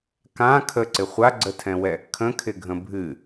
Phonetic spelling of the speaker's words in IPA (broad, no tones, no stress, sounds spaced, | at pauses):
k ã kʰ ə ǀ ɪ χʷ a ɡ͡ǀ ə tʰ ɛ̃ w ɛ | kʰ ə̃ kʰ ɪ ɡʱ ə̃ bʱ ɨ